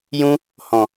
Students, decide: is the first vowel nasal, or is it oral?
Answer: nasal